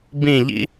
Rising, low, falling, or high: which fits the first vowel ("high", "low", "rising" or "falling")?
falling